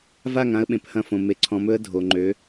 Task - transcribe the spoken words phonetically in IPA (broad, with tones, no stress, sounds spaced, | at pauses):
v a˦˨ ŋ ã˦ ə̯ ɓ ẽ˨ p h ɐ̃˦ f õ˨ m e˨ ǀʰ ɔ̃˨ m ɵ˦ ə̯ dʱ o˨ ŋ͡ǃ ø˨˦